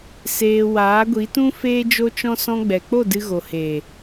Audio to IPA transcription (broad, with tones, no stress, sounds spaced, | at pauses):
s eː˧ w aː˨˦ ɡʷ i˨˦ t ũ˦ f eː˦ d͡ʒ o˦ t͡ʃ ɔ̃˦ s ɔ̃˧ ɡ͡b ɛ˨ k͡p o˦˨ d ɨ˧ ɣ o˨ h eː˨